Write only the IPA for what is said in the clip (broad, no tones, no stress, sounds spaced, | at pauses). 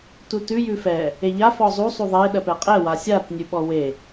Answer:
t u t ʉ j ʉ f ɛ | e ʎ a f ɔ zˤ u sˤ u ðˤ e ɗ ɜ p ɛ qʼ ɛ w a sʲ a t nʲ ʉ ɓ ɔ w e